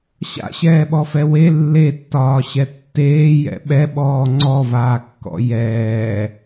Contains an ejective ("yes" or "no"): no